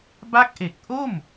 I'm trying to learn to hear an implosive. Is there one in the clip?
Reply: no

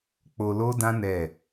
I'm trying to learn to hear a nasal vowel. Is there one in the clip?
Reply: yes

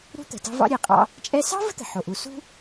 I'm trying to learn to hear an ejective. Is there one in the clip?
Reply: yes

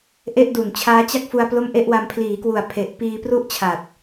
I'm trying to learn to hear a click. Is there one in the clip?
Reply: no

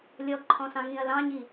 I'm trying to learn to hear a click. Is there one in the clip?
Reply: yes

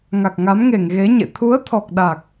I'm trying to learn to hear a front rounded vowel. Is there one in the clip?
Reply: no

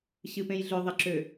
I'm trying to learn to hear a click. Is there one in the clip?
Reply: yes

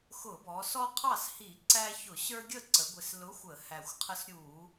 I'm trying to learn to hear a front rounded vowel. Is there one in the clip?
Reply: no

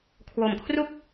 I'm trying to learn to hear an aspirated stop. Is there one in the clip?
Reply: yes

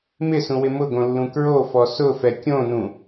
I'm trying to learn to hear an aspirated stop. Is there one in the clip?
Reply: no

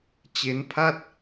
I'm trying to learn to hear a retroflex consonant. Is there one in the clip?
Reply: no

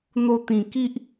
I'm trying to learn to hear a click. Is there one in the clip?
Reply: no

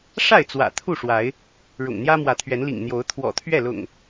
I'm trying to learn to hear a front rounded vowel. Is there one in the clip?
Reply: no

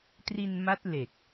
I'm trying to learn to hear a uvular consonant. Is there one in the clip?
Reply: no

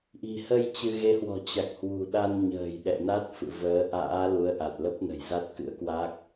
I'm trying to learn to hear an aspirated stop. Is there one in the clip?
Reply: no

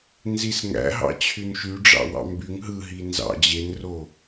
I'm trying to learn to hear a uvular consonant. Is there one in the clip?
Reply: no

